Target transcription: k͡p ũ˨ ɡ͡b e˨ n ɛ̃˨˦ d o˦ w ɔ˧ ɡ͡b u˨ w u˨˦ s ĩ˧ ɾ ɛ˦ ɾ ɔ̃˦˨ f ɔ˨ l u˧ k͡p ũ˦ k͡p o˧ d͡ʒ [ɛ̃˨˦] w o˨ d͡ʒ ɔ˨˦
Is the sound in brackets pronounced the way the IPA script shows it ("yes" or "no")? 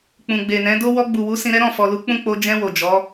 no